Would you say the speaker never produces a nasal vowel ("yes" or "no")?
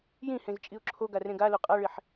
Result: no